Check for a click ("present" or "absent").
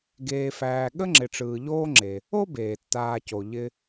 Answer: present